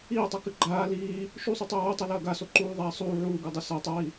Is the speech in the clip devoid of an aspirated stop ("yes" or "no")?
yes